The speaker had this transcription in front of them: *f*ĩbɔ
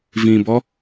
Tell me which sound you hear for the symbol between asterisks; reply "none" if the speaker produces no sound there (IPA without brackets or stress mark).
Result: v